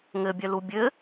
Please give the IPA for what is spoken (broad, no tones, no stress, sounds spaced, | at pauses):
ŋ ɘ bʲ œ l u bʲ ɘ